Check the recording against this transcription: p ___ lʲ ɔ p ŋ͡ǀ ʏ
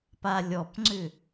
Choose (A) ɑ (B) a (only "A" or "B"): B